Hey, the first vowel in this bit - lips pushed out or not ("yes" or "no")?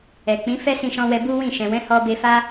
no